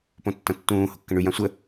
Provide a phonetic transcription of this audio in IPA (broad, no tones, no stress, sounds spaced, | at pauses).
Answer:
p õ tː ɐ̃ tː ũː h ʊ kː ə̃ ɳ y j ã sʷ ə